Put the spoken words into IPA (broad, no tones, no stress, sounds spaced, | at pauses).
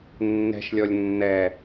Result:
nː ɛ̤ ʃ lʲ ɔ lʲ nː ɛ